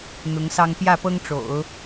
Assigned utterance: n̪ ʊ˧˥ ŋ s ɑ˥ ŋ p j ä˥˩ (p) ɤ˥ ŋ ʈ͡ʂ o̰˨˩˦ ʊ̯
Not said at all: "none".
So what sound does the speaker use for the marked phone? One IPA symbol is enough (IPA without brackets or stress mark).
p